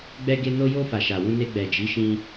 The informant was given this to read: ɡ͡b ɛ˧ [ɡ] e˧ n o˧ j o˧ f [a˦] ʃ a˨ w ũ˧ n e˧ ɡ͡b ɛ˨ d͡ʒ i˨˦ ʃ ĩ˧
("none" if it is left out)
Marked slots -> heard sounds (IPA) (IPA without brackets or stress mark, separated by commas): ɡ, a˨